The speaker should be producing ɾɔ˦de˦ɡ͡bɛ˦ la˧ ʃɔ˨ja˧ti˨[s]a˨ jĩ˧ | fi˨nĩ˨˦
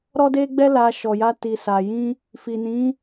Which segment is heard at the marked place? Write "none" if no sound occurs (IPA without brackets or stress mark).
s